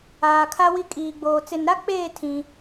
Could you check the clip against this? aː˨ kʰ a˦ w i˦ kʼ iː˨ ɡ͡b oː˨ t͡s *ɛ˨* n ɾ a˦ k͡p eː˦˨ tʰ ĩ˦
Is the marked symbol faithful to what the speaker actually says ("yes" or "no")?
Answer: no